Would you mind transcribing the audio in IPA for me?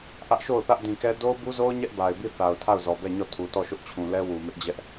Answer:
ʔä˦ʔʃo˦˨ʊ̯θä˦ʔ dĩ˨kɛ˦ do˦ʊ̯bu˦zo˦ʊ̯ ɲɛ˦ʔba˨ɪ̯bi˦˨ θa˨ʊ̯tʰa˦˨ʊ̯zɔ˨bɛ˦˨ ɲɔ˦˨tʰu˨ tɔ˦˨ʃʊ˦ʔt͡ɕʰũ˨lɛ˦ wu˨ mɪ˦ʔd͡ʑɛ˦ʔ

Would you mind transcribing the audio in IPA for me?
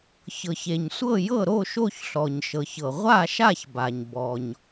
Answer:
çɤ˩çe˩ɲsʷɤ˦˨ jɤ˦˨ɾo˦˨ʃo˦˨çɬɔ˩ɲ ʃɤ˩çɤ˩ ʁʷa˦˨ʃa˦˨çba˩ɲ bɔ˩ɲ

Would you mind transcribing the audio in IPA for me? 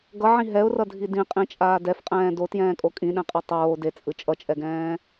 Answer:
ɡʌʕĩ ɦɛʊ̯rʌdʱi dĩqʼĩt͡ʃʼaː dɛfqʼɛ̃ː dotjɛ̃ːkʼo kʼĩɗɛ̃qʼɛ tˤoː det͡sʼɯ t͡ʃʼʌt͡ʃʼɛɡɛ̃ː

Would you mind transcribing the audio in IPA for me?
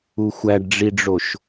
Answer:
uxʷæɖɖ͡ʐiɖ͡ʐoʃ

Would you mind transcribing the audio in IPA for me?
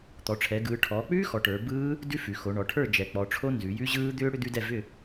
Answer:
t̪ɔ˩˧ʈ͡ʂʰɛ˩˧ɡɯː˩˧ ʈʰɔː˩˧k͡pʉː˦˥xɔ˩˧ ʈə˞˩˧ bɯː˦˥ | dʉ˦˥fʉ˩˧ xo˩˧ɳɔ˩˧ʈʰə˞˥˨ d͡ʒɛ˩˧k͡pɔ˩˧ʈ͡ʂʰo˦˥ nzʉ˩˧jʉ˦˥ʑɯː˦˥ d̪ʏː˦˥ ɽʏ˦˥d̪ʉ˦˥dɛ˥˨ vʏ˥˨

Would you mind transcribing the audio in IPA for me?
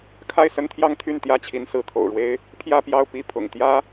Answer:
kʰa˥˩ɪ̯sə˥nt̪ʰjɑ˥˧ŋ t̪ʰy˥˩nt̪jä˥t͡ɕʰi˧˥n sɹ̩˧˥t̪ʰo̰˨˩ʊ̯ɻwe˥ɪ̯ | pʰjä˥˧pjɑ˥˧ʊ̯ pi˥˩ pʰʊ̰˨˩ŋt̪jä˥

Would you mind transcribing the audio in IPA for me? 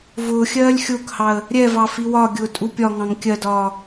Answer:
vʊːxʲɜːlʲ xʲʊːkhɑə̯ | ɾʲɛvɑ fiwɒɡʲʊː tʼupʲɒŋɑ̃ŋ kʲɜdɒː

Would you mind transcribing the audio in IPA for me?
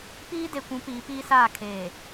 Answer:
piː˦ de˨kʷũ˨˦ piː˨˦piː˦saː˦˨ kʰeː˨

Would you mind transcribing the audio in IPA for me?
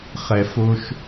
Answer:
χɛ˨fo˧ʃ

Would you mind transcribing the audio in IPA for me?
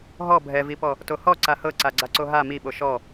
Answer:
ɦɔ bʱɛvipɔ | tohɔ ǀahɤ ǀaɡ͡ǀaǀoɦa miɓo ʃɔ

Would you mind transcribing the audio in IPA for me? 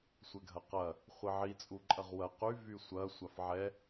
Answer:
sʷɛɡʱɐqɐ | χʷiʕi t͡sʼuǃʼɐʁwɐ qy vysʷɐ sʷafʕɛ

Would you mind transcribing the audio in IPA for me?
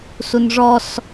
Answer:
sunʐɔs

